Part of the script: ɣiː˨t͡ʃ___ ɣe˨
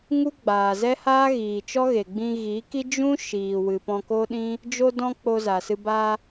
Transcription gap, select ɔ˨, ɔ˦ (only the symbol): ɔ˦